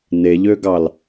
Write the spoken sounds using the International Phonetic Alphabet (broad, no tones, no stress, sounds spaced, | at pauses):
n e ʎ ø ɡ ɑ l